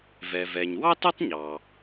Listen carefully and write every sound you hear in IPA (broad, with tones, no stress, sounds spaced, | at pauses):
v ɛ˩ v ɛ˩ ɲ w ɑ˥ t o˥ tˤ ɲ ɑ˩